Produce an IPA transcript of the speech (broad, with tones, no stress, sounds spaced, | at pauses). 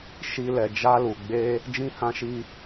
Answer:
ʃ i˦ l ɛ˧ d͡ʒ a˦ l u˧ ɡ͡b e˦ | d͡ʒ ĩ˦ h ã˦ ʃ i˦